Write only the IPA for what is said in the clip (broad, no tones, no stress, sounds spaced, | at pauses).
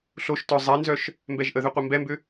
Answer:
ɬ o ʃ t œ zˤ ɛ n z œ ʃ | m b ɛ ʒ ʔ ə ð ʏ qʷ ɐ m b ɛ m b ʏ